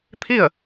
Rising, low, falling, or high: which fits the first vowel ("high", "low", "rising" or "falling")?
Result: falling